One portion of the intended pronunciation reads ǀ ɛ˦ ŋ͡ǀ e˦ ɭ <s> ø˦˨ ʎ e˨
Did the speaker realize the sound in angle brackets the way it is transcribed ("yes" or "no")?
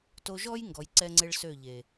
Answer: yes